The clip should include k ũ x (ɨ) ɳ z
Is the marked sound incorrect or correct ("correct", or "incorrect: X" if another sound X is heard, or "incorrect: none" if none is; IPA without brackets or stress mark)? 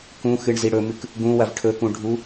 correct